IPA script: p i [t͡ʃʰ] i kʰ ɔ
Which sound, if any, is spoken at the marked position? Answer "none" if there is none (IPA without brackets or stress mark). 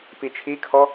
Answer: t͡ʃʰ